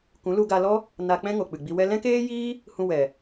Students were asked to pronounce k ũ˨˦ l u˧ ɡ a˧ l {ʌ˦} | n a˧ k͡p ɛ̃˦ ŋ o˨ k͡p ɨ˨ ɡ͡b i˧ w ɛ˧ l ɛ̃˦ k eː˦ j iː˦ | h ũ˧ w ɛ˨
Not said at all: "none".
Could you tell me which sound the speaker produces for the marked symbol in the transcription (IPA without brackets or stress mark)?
ɔ˦